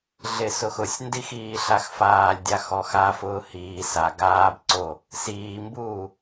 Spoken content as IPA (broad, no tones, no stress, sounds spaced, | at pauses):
ɮ ɪ s ʊ x ʊ sʲ n d i x iː ɬ a x f aː lʲ dʲ a x ɔ x a f ʊː h iː s a ɡ aː b ǀ o | s iː m b uː